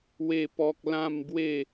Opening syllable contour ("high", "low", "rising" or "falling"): falling